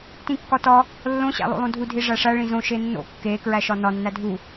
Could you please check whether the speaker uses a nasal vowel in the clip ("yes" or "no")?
yes